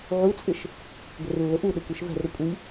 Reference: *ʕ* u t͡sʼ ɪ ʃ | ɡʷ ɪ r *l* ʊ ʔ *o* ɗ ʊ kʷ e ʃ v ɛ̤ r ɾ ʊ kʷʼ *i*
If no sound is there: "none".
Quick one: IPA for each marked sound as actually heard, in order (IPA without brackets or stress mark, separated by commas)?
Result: ʕ, lː, u, i